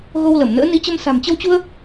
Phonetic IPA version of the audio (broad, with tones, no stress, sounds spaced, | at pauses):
ɣ o˧ w l ə˧˩ m n ə̰ː˧˥ n i˨˦ t͡ɕ ə˧ m s a̤˨˩ m t͡ɕ ə˧ w t͡ɕ u˧ ə̯